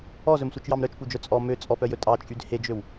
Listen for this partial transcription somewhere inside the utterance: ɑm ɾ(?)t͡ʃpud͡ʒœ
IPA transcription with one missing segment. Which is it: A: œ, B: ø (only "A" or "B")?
A